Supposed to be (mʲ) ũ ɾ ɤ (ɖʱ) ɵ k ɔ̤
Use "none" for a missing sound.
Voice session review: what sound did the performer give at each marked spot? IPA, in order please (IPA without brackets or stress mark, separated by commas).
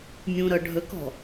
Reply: mʲ, ɖʱ